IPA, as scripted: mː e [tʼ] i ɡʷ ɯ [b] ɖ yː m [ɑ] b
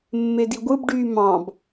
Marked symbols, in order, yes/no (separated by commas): no, yes, no